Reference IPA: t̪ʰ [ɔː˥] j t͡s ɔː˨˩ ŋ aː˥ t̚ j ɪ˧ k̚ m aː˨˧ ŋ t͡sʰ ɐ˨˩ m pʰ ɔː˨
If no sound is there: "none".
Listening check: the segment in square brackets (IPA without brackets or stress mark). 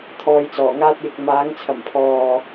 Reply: ɔː˧